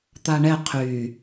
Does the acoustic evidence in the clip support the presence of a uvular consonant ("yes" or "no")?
yes